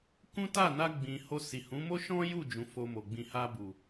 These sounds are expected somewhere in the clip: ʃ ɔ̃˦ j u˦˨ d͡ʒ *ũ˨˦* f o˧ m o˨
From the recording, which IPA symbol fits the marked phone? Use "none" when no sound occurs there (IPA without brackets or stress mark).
ũ˨˦